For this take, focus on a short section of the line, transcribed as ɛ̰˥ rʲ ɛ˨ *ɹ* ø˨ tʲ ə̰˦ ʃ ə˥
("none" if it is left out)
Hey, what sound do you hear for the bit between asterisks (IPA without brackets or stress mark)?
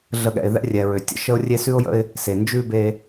ɹ